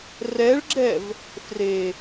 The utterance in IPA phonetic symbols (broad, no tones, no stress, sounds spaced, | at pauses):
r ɛ ɭ ɡ͡ǁ ɛ v | f r e